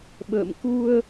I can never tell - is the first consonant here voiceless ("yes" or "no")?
no